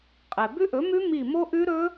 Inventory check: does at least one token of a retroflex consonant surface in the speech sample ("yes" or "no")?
no